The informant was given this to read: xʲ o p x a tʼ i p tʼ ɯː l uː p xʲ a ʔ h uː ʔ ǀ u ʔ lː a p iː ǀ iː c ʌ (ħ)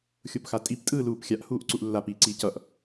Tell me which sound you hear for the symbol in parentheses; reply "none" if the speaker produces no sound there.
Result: ʔ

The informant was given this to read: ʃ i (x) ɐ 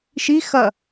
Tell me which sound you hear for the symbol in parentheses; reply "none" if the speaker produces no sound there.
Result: x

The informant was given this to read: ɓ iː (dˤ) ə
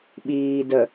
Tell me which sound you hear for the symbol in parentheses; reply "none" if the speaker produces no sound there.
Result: d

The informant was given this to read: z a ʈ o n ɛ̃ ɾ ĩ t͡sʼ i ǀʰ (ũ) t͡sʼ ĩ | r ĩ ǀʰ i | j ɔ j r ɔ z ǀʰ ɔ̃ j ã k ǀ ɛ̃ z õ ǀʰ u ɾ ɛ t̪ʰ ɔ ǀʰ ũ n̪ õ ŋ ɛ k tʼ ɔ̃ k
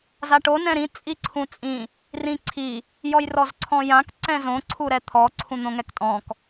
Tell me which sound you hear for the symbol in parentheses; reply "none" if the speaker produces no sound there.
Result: ũ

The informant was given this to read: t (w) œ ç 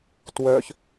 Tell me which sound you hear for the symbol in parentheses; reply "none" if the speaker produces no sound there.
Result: w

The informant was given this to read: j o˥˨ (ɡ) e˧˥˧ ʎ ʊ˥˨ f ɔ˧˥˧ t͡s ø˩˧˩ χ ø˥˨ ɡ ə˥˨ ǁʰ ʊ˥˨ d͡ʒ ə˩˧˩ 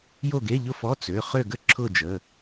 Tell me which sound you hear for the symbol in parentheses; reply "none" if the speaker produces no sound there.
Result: ɡ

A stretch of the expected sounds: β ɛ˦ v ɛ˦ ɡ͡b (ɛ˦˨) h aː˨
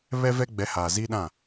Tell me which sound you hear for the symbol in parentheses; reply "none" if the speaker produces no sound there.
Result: ɛ˨˦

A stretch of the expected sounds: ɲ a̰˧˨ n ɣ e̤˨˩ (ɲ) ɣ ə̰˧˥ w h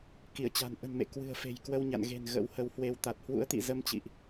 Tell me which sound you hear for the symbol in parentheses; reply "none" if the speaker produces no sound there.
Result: n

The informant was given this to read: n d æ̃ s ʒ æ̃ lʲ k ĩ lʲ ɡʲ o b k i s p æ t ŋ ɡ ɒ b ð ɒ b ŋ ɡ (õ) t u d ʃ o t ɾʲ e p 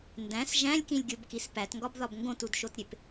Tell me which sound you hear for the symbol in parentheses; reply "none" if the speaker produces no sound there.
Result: õ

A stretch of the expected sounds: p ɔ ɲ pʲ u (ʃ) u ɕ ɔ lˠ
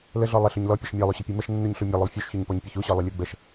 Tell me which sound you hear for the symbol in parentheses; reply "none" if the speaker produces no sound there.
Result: ç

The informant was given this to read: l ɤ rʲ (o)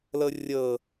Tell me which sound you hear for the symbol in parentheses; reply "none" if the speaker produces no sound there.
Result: ɤ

